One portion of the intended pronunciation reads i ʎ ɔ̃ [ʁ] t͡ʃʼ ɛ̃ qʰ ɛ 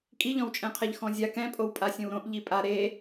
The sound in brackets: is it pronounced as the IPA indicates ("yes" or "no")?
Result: no